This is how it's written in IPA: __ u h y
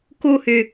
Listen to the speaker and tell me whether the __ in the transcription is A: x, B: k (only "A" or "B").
B